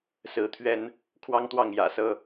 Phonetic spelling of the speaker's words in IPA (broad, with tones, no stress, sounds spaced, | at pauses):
s ɹ̩˧˥ t̪ʰ ɥ ɛ˥ n | kʰ w ɑ˥ ŋ t̪ w ɑ˥˩ ŋ j ä̰˨˩ s ɤ˥